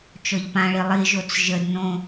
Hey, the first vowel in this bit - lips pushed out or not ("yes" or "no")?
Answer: yes